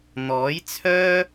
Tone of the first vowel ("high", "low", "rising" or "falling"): rising